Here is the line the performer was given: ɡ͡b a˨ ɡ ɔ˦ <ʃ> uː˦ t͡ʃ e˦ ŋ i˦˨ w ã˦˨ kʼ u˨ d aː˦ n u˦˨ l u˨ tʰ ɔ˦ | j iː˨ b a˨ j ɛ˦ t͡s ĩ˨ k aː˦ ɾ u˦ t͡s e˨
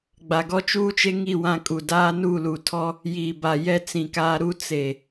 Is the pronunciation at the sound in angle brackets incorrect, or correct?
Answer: incorrect